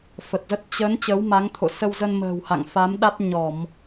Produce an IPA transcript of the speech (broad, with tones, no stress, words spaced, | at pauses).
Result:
fə˨˩t̚zə˦˥t̚ t͡ɕə˨˦n t͡ɕə˨˦wma˨˦ŋ t̪ʰo̰˧˨ sə˧wzə˧n mə̤ː˨˩w ha̰˧˨ŋfa˨˦mɗa˦˥t̚ ɲɔ˧˩˨m